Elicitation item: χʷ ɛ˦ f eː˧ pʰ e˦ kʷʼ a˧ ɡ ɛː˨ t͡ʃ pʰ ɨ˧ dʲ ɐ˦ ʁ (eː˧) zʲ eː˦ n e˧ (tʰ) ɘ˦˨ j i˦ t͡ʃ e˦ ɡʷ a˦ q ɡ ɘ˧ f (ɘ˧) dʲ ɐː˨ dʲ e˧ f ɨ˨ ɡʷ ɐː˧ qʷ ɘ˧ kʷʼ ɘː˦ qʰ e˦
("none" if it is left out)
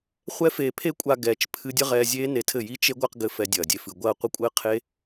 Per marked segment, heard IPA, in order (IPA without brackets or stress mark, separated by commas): ɛː˧, tʰ, ɛ˧